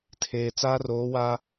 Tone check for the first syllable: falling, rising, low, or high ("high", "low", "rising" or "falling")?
low